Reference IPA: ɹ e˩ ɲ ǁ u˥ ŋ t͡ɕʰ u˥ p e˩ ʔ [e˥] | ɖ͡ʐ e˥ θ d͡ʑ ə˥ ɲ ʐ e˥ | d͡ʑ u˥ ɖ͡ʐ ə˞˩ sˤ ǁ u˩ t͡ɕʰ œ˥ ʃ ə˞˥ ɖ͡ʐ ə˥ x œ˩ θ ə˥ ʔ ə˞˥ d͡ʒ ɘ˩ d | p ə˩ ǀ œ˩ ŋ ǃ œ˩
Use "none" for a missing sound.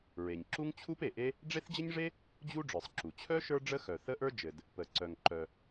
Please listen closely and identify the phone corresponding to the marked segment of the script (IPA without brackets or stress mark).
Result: e˥